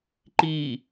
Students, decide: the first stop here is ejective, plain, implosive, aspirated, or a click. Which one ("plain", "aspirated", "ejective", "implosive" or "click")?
click